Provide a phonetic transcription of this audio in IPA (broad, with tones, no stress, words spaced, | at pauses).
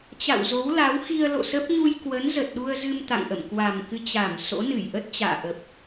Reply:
t͡ɕa̰˧˨wzo˨˦wla˨˦w xi˧ə̯lo̰˧˨sə˦˥p̚ ɲu˧jkwə˨˦n zə˨˩t̚ɗu˧ə̯zɨ˧m t̪a̰˧˨ŋʔə̰˧˨m kwa˨˩mkɨ˧t͡ɕa˧˩m so̰˧˥nɨ˧˩jʔə˦˥t̚t͡ɕa̰ː˧˨ ʔə˨˩p̚